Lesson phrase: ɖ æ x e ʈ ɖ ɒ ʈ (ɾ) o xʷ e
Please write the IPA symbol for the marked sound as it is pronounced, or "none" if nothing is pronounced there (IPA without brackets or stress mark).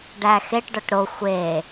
ɾ